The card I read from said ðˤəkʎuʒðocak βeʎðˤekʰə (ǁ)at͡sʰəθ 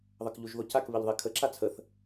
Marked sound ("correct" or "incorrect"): correct